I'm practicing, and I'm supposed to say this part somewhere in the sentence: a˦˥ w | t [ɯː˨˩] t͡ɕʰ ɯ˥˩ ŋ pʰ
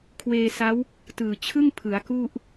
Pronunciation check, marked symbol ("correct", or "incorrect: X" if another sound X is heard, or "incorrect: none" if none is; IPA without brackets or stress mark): correct